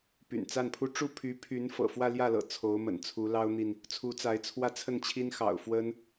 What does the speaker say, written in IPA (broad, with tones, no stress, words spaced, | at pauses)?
py̰˨˩nt͡sa˥˩npʰu˥ ʈ͡ʂu˥˩pʰy˧˥pʰy˧˥n fɤ̰˨˩fwä˥˧ljä˥˩lɤ̰˨˩ t͡sʰo˧˥ʊ̯mə̰˨˩nt͡sʰu˧˥ lɑ˥ʊ̯n̪i˨n | t͡sʰu˧˥t͡sa˧˥ɪ̯t͡sʰwä˥ t͡sʰə˥˩nt͡ɕʰi˥nxɑ̰˨˩ʊ̯ fwə˥n